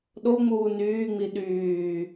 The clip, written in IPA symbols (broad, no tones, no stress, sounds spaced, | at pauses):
ɗ o ŋ͡m uː n yː ŋ͡m i ɗ yː